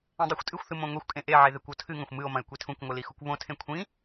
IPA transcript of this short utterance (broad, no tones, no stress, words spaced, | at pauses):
ẽdˤixʷtʼɨxʷθɨ mõŋʷexʷkʼẽ ʔeʕe ðekʷotʰɨŋɐ̃xʷ mɨo̯mɐ̃e̯ kʷitʰũkʷŋʷɨ lixukʷβõtʰẽ kʷʰĩ